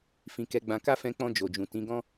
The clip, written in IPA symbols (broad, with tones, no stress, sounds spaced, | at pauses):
f ĩ˨ k ɛ˨˦ ɡ͡b ã˧ k a˦ f ɛ̃˧ k͡p ɔ̃˧ d͡ʒ o˨ d͡ʒ ũ˨ t ĩ˨˦ ɡ ɔ̃˦